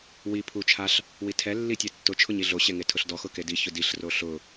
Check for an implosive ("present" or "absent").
absent